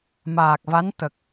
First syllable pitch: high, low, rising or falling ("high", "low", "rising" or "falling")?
low